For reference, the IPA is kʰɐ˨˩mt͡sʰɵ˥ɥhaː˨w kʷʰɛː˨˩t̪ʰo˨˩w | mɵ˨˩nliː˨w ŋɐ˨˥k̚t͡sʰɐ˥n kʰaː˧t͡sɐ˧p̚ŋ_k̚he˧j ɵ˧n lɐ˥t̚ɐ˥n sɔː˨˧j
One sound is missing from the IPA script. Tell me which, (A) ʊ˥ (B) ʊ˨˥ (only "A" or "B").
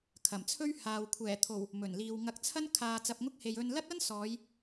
A